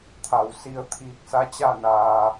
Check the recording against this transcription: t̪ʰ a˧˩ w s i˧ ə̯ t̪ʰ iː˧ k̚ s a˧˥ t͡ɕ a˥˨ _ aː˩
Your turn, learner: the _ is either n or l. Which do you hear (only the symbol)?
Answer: n